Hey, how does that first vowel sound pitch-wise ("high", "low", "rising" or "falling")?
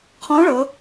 rising